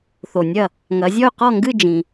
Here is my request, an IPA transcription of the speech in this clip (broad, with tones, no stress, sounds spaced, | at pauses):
θ o˩ nʲ ɐ˧˩ | ŋ ɐ˨˦ zʲ ɔ˥˧ y̯ q ɔ˥˧ ŋ ɡ ɨ˥˧ d͡ʒ ĩ˩